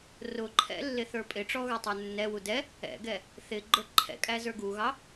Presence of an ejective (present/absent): present